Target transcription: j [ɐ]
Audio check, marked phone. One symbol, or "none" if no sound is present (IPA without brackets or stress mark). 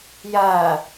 ɐ